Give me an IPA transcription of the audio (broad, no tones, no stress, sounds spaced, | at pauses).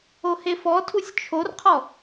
o h e f ɔ tʰ u sʲ t͡ʃʰ o r qʰ ɔ